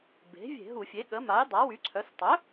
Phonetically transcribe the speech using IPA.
b e̤˩˥ vʲ e̤˧˩˧ ɦ u˧˩˧ fʲ e˩˥ ɠ ə˩˥ m a˩˥ j dˤ a˩˥ w y˩˥ ǀʰ œ˩˥ s tˤ œ˩˥

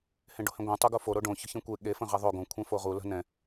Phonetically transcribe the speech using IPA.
h ẽ ɖ o̤ h ẽ ɡʷ ɛ̃ tˤ o ɡ o f o ɾ o ɖ õ ç ə̤ ç ẽ kʷ e ɠ e f ə̃ ʁ ɛ ðˤ o ɡ õ kʷʰ ɛ̃ f o ʁ u l ə̤ n ɛ̃

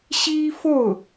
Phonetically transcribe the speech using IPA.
ɕ i˥ f o˥˩ ʊ̯

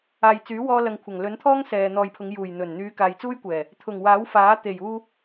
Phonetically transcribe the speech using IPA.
aː˨ j t͡s yː˨˥ w ɔː˧ l ɐ˨ ŋ kʷʰ ɐ˨˩ ŋ l ɵ˨˥ n t̪ʰ ɔː˥ ŋ s ɛː˨ n̪ ɔː˨ j pʰ ʊ˨˧ ŋ j uː˨˩ j n̪ ɵ˨˩ n n̪ yː˨˧ k aː˨ j t͡s uː˥ j kʷ ɛː˨˩ | t̪ʰ ʊ˨˩ ŋ w aː˨˥ w f aː˨˥ t̪ e˨˩ j uː˧

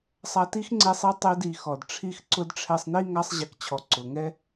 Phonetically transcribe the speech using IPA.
sˤ a˧ t i˥ x ŋ͡ǀ e˧ sˤ i˧ tˤ e˧ d i˩ x ɔ˩ d ʈ͡ʂʰ i˧ x ǀ ʊ˧ d ʈ͡ʂʰ ɛ˧ sˤ n i˥ ŋ a˧ sˤ ʑ ɛ˩ k t͡ɕʰ ɔ˩ ǀ ʊ˩ ŋ ɛ˥

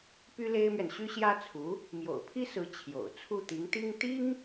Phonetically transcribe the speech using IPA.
p y˥ l e˥ ɪ̯ m ɥ ɛ˨ n ɕ y˥ ɕ j ä˥ t͡sʰ u˧˥ | m j o̰˨˩ ʊ̯ pʰ i˥ s ɹ̩˧˥ t͡ɕʰ j o̰˨˩ ʊ̯ t͡sʰ u˥˩ t̪ i˧˥ ŋ t̪ i˥ ŋ t̪ i˥ ŋ

